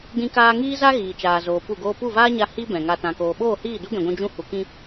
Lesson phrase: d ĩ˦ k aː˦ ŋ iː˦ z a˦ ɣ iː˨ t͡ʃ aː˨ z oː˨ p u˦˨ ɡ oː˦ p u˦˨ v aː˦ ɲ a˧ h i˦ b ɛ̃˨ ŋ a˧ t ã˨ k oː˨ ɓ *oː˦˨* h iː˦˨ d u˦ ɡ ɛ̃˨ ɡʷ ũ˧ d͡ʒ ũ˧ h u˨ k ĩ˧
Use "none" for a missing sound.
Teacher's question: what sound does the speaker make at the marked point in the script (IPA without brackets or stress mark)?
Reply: oː˦˨